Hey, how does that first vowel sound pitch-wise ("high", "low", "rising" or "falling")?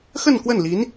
falling